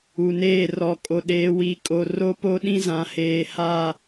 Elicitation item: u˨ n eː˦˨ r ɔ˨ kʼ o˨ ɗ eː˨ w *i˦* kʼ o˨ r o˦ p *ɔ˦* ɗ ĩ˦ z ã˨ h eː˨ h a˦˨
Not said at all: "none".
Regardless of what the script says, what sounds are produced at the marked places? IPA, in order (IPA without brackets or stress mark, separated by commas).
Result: i˨, o˦